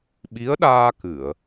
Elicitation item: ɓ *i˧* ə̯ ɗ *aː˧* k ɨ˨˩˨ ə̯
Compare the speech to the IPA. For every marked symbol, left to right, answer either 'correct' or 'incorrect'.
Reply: incorrect, correct

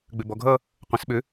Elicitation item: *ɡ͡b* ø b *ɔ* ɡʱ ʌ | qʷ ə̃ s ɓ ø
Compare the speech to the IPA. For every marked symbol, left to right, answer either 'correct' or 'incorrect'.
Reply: correct, correct

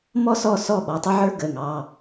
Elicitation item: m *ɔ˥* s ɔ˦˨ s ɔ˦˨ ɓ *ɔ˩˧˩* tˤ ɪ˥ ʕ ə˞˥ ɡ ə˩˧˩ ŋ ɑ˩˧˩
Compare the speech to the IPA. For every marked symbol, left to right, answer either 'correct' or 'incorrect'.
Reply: correct, correct

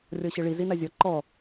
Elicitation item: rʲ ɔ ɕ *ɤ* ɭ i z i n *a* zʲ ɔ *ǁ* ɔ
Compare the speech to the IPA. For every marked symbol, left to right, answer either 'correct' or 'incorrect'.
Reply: correct, correct, incorrect

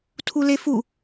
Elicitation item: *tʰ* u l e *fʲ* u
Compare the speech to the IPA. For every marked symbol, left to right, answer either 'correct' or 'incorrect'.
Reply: correct, incorrect

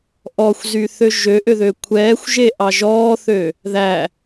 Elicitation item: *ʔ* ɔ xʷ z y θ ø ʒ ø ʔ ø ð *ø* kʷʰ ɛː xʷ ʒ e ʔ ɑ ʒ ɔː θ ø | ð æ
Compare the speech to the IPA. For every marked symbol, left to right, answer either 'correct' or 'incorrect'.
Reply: correct, correct

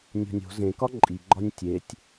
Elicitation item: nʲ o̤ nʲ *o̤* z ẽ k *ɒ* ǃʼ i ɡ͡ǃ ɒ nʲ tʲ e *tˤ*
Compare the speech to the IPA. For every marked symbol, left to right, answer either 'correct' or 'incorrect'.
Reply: correct, correct, incorrect

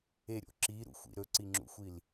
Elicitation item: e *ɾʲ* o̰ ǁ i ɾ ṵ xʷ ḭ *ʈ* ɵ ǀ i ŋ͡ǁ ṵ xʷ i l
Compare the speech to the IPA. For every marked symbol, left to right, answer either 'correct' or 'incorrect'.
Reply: correct, incorrect

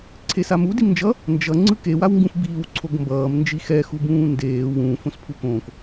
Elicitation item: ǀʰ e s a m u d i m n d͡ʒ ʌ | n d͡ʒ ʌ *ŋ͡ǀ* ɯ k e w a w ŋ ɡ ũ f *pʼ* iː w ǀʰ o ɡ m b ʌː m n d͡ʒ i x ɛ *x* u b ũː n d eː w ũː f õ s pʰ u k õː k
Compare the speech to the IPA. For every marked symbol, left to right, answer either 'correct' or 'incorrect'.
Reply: correct, incorrect, correct

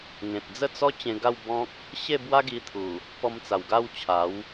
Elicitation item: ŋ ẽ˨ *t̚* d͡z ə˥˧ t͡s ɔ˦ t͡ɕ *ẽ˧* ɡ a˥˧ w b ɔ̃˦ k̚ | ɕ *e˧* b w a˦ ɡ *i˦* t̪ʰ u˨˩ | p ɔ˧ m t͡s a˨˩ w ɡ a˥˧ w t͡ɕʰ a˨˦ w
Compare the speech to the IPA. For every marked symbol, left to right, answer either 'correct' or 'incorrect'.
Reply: correct, correct, incorrect, incorrect

